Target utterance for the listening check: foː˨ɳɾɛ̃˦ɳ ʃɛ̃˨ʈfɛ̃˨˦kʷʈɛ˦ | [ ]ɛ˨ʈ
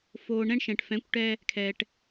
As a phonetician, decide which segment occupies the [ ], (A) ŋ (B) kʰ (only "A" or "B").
B